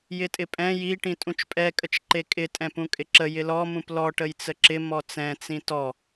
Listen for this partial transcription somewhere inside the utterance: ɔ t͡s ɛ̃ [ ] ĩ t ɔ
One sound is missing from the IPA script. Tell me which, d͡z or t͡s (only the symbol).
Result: t͡s